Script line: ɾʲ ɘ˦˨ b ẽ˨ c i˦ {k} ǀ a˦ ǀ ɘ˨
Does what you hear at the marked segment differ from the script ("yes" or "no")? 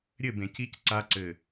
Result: yes